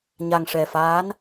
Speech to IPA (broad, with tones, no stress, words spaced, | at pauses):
ɲa˨˩ŋʂɛ˨˩faː˧˥n